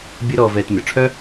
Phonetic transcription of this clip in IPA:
bʲ əː˥ ɾ ɔː˧ v ɛː˧ t mʲ ɔ˩ ʈ͡ʂʰ œ˥

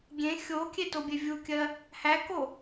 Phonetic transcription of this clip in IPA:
ɡʲ ẽ xʲ o kʲ e t o bʲ e vʲ u kʲ ɜ | h æ k o

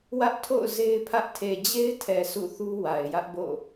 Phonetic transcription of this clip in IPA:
w ä˦ ʔ tʰ o̰˦˨ ʊ̯ z e˦ ɪ̯ pʰ ä˦ ʔ tʰ e˨ d͡ʑ e˦ ɪ̯ tʰ ɛ˨ sʰ ṵ˦˨ θ u˦ w a˨ ɪ̯ j ä˦ ʔ b o̰˦˨

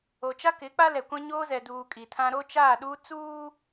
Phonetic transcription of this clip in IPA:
o˨ t͡ʃ a˦ k ɪ˨˦ k͡p a˦ l ɛ˨ kʷ ã˦ ɲ oː˦ z ɛ˨ d uː˨ kʼ iː˨ tʰ ã˦ ɾ o˦ t͡ʃ aː˦˨ ɗ uː˦ t͡s uː˦

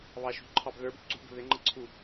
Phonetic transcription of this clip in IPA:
β ɑ ʃ ṳ ǃʰ ɑ b ð ə˞ b ǀ ṳ b ə̤ ð ɪ ŋ͡ǃ ə ǀʰ u

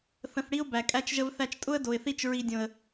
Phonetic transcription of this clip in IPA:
θ ə̃˧ θ ɽ i˦ ʊ̯ b æ˨ kʼ æ˧ t͡ʃ ʒ ə˧ v θ æ˧ t͡ʃ tʼ ʊ˦ ə̯ d o˨ ɪ̯ θ i˧ t͡ʃ ɹ i˨ dʲ õ˨ ə̯

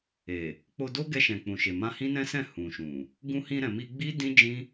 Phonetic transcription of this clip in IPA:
e˨ | k͡p o˧ d o˦ ɡ ɛ˧ ʃ ɛ̃˨ k͡p ũ˨ ʃ e˨ m ã˧ h ĩ˦ n ɛ̃˦ s ɛ̃˦˨ h ũ˨ ʃ ũ˨ | ɡ ũ˧ h ĩ˧ ɾ ɛ̃˨ m i˧ ɡ͡b i˦ d ĩ˦ d͡ʒ ĩ˦

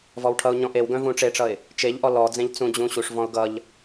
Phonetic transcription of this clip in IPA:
v ɔ w ʈʰ ʌ ʊ̯ ɲ ɔ̃ ʔ e w ɡ œ̃ v ũ ʈ͡ʂ e ʈ͡ʂ ʌ ɪ̯ | t͡ʃ e ʎ ʔ ɔ l ɔ d͡z ẽ ʎ t͡s ũ d͡ʑ ũ ɕ u ʂ v ɔ̃ ʊ̯ ɡ ʌ ʎ

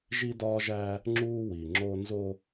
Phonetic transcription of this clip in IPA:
ʒ i˦ d ɒ˦ ʒ æ˦ | ŋ͡ǁ u˦ w i˨ ŋ͡ǁ o˦ n z o˦

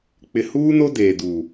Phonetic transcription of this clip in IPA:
k͡p ɪ˨ h uː˦ n o˦ d eː˨ d u˨

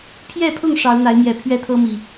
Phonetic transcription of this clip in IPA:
pʰ j ɛ˥˨ pʰ ʊ˥˨ ŋ ʂ ɑ˨˦ ʊ̯ n̪ a˨˦ ɪ̯ m j ɛ˨˩ pʰ ɥ ɛ˦ t̪ʰ ɤ˦ m i˨˩

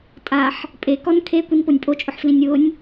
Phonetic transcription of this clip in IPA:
tʼ a ħ | pʼ e k ɔ n kʰ e kʷ i n p o nʲ pʼ o t͡ʃʼ ʊ ħ f l ĩ nʲ w ʊ nʲ

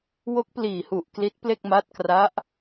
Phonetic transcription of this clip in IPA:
w o˦˥ k̚ p l iː˨˩ h u˨˩ ʔ k l i˦˥ t̚ p l e˥˩ k̚ m a˦˥ t̚ k r a˦˥ ʔ

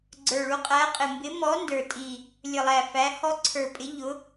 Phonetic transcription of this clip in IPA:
ɡ͡ǀ ə˞˨˩ ɭ u˨˥ qʼ æ˨˥ qʼ ɪ˨˩ m b ɪ˨˥ m ɔ˨˥ n d ə˞˨˩ tʼ i˨˩ | lʲ ə˨˩ lˠ æ˨˩ f æ˨˥ h ɔ˦˥ ǀʰ ə˞˨˩ pʼ ɪ˨˥ ʎ ʊ˨˥

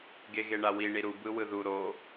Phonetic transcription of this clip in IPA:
ɡ e ɣ e ɳ a w i ɳ i ɾ u b ɯ w ɯ ð u ɾ o

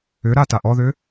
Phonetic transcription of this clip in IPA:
ʏ ɾ a t a ʔ ɔ ð ʏ

